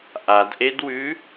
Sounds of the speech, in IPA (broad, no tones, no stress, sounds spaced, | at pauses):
ʔ a d ʔ e d w ʉ